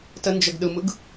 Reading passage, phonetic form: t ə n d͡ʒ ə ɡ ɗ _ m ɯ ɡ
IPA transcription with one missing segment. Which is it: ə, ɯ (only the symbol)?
ɯ